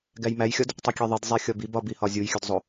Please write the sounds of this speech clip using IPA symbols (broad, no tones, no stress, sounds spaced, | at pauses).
ɡ æ j m æ j xʲ ɒ d | tˤ i kʲ e ðˤ i d zˤ e xʲ ɒ b i b ɒ b i h ɒ zʲ u j xʲ u d zˤ o